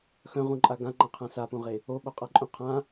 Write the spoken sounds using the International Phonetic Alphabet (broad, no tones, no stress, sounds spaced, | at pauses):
x œ̃ ʁ ũ ǃʼ a ɡ ã ŋ͡ǃ ã qʰ ã s a p ũ ʁ e | o ɓ o qʼ a ǃʼ ũ qʰ ã